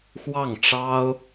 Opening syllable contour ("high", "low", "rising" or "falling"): falling